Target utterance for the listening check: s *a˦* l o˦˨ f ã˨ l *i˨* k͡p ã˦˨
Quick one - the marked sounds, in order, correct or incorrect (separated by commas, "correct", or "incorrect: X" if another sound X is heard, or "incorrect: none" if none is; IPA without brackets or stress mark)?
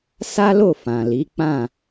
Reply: correct, incorrect: i˨˦